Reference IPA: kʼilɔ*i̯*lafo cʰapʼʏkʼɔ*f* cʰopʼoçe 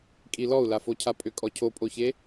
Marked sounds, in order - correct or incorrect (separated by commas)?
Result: incorrect, incorrect